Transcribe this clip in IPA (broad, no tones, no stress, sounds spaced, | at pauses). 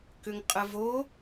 k ʏ ŋ qʼ ə v o